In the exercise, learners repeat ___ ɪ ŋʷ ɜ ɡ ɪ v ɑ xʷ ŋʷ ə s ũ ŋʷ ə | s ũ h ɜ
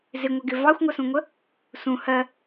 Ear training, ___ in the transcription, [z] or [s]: z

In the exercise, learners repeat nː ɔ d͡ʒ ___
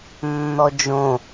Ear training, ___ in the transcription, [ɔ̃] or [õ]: õ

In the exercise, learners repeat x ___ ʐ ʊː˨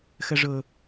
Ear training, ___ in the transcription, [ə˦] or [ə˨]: ə˨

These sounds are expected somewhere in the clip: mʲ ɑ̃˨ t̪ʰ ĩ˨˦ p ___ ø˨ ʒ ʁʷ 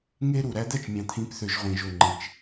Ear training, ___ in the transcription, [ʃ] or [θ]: θ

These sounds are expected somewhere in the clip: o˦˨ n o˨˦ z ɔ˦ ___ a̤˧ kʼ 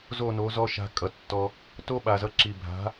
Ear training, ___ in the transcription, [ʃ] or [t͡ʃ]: ʃ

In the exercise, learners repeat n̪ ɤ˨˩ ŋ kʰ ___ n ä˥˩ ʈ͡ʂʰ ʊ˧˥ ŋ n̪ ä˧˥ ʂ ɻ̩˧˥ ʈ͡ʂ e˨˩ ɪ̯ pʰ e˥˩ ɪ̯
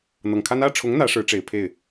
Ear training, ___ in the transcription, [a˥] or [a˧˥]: a˥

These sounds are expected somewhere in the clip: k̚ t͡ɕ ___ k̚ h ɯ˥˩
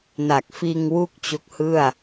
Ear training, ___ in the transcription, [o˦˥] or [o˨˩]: o˦˥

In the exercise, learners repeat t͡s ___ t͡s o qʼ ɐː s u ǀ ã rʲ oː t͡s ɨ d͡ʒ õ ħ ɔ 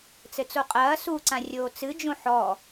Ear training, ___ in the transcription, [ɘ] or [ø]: ɘ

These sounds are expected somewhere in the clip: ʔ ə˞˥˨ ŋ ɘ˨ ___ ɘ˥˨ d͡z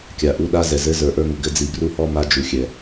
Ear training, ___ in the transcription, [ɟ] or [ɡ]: ɡ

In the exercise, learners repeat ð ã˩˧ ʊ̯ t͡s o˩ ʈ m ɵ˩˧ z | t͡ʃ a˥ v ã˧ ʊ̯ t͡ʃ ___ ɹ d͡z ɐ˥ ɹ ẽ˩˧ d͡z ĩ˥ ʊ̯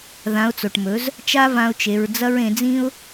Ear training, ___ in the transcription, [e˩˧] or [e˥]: e˩˧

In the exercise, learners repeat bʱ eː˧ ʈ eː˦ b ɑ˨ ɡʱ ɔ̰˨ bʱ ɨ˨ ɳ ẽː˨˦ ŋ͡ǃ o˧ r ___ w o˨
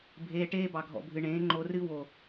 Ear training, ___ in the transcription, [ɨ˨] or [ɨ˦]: ɨ˦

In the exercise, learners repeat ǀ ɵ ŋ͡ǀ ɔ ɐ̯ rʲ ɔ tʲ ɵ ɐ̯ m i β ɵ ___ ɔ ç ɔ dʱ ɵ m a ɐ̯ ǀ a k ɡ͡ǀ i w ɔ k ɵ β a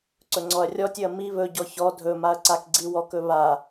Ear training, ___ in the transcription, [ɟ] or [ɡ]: ɟ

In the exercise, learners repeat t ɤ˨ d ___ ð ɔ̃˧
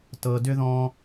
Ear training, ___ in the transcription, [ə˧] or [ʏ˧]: ʏ˧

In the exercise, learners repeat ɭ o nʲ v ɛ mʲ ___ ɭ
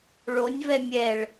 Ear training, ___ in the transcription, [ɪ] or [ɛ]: ɛ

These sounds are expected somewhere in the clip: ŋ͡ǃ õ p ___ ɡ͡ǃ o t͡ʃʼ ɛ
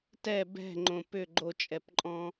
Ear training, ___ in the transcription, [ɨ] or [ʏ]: ʏ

